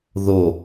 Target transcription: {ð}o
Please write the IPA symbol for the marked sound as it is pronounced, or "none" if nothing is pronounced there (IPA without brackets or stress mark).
ð